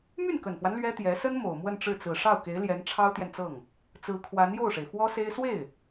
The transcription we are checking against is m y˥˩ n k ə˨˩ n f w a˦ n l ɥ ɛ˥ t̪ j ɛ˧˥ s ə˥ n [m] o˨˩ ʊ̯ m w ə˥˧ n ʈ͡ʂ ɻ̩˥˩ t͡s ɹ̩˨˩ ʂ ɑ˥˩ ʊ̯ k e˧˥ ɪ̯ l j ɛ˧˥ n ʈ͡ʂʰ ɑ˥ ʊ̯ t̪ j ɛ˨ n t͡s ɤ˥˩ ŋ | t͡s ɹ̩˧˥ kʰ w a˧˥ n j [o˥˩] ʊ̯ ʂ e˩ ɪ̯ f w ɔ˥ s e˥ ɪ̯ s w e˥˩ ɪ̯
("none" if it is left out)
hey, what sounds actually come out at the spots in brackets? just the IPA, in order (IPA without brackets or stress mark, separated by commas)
m, o˥˩